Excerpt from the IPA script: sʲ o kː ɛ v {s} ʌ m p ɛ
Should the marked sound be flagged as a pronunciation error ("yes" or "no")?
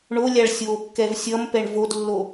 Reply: yes